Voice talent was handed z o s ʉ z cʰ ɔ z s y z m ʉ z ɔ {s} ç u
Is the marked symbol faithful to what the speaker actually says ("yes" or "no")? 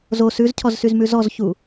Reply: no